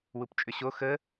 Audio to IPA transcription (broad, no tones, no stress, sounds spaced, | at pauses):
w u p t͡ʃʼ ʏ ɕ o x ə